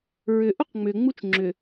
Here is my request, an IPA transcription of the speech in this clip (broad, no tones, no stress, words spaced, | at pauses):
ɹʏ ʔuqŋ͡mʏ ŋ͡mut͡ʃŋ͡ǁʏ